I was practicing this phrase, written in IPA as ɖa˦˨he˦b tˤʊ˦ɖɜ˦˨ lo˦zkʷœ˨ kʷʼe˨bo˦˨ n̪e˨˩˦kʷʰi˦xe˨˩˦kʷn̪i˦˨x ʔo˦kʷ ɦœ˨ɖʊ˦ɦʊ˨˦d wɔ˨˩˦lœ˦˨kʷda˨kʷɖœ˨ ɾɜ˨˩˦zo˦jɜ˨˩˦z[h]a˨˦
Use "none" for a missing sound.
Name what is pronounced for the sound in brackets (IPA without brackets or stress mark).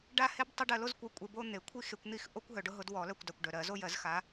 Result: x